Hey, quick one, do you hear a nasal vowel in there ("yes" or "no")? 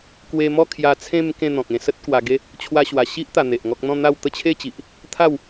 yes